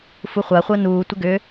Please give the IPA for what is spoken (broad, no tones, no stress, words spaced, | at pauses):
fuχʷaχʷəː nuːtʷə ɡʏ